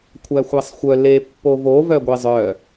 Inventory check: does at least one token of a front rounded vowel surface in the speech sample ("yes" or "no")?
yes